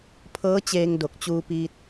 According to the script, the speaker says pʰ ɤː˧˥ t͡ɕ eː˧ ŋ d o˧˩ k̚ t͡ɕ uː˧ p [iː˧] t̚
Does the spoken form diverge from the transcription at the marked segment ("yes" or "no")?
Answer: no